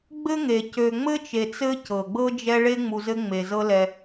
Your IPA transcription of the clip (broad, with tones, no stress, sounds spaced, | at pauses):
ɡ͡b ɘ˥ ŋ e˩ c ø˨ ŋ͡m ɘ˥ t͡ʃ e˨ t͡s ɘ˦ c ɤ˩ ɡ͡b ɤ˥ d͡ʒ ɛ˦ ɭ e˥ ŋ͡m u˨ z ɘ˦ ŋ͡m e˩ z ɤ˦ l ɛ˨